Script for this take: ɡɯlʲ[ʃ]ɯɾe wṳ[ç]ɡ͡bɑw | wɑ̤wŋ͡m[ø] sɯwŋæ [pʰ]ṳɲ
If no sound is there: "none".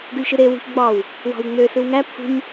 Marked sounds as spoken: ʃ, ç, ø, pʰ

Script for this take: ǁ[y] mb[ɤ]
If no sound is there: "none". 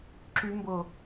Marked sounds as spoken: y, ɤ

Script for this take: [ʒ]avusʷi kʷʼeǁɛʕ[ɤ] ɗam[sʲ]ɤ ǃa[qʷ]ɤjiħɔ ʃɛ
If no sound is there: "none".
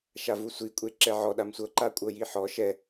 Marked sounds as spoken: ʃ, ɔ, sʷ, kʷʼ

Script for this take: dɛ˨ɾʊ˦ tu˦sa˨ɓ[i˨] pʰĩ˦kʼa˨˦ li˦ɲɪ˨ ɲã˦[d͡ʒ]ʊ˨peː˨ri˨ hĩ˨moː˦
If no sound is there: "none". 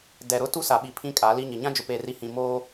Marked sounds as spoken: i˨, d͡ʒ

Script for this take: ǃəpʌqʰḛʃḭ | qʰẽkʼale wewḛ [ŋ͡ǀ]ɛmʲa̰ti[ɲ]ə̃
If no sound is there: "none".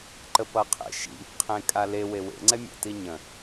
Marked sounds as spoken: ŋ͡ǀ, ɲ

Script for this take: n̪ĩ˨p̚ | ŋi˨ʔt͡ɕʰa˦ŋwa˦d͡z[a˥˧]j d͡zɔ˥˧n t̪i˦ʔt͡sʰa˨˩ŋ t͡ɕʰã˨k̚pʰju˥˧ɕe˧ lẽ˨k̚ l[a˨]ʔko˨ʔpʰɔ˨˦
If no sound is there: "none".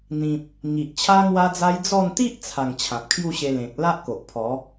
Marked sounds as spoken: a˦, a˦

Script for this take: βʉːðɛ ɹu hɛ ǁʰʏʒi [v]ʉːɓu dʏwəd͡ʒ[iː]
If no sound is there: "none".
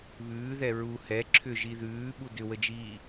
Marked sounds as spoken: ð, iː

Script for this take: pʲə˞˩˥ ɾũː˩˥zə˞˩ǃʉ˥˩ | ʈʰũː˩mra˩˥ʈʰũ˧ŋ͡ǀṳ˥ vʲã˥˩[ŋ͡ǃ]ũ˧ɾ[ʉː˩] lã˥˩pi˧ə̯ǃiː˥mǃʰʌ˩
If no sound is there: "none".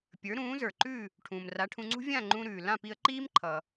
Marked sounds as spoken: ŋ͡ǃ, ʉː˩

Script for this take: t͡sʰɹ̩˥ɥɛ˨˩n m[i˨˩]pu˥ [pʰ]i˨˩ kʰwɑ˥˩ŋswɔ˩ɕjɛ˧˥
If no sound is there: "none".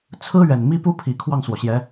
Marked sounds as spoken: i˥, pʰ

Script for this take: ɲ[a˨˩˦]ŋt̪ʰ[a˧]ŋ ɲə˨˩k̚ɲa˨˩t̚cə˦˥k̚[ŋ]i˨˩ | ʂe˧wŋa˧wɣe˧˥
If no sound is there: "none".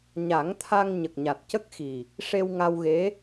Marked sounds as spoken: a˨˩˦, a˧, x

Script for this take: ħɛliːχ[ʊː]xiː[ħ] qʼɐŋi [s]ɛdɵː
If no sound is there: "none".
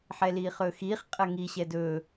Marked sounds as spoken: ɵː, χ, ɕ

